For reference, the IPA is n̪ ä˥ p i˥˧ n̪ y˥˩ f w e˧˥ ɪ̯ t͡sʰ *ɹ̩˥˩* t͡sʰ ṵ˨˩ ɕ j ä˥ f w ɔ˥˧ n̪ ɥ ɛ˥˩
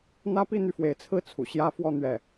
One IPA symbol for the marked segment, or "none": ɹ̩˥˩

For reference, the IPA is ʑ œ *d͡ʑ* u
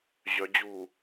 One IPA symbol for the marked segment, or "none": d͡ʑ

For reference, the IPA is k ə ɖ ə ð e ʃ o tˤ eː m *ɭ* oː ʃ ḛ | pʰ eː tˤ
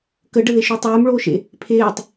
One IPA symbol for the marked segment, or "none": ɭ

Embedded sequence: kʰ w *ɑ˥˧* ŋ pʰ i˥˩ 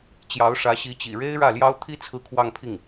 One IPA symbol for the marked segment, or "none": ɑ˥˧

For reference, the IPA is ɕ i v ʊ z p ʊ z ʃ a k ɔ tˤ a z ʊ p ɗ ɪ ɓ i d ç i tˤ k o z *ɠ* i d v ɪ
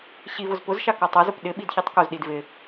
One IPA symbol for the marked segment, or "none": ɗ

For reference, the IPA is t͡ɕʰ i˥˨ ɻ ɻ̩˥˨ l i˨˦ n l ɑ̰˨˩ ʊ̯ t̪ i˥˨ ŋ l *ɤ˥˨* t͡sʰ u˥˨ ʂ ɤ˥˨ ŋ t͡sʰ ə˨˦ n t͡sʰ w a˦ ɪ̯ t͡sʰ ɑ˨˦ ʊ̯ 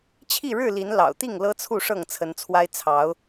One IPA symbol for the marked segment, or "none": ɤ˦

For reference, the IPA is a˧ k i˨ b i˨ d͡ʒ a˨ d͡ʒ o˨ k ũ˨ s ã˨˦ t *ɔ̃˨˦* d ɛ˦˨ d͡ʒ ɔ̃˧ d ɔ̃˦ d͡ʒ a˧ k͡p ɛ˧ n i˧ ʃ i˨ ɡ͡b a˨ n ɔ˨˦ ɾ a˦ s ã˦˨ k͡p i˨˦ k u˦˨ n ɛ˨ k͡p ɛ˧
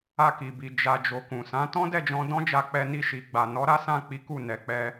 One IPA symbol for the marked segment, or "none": ɔ̃˦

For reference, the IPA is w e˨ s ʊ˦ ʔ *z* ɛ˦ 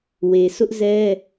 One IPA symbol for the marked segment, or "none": z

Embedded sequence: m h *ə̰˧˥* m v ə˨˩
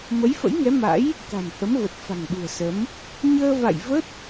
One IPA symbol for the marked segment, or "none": ə˨˦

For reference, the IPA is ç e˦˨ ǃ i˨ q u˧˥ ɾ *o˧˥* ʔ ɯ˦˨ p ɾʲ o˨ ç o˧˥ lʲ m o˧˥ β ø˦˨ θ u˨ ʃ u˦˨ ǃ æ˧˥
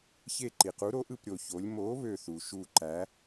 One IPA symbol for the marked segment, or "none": o˧˥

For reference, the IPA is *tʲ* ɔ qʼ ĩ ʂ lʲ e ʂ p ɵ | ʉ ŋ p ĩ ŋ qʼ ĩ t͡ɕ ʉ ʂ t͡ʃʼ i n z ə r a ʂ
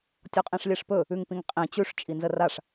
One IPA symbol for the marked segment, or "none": tʲ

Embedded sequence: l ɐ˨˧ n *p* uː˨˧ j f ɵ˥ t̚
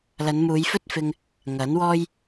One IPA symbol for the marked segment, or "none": m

